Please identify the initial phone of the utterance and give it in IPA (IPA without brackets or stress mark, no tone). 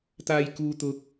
t̪